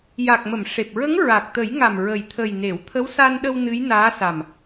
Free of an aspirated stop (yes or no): no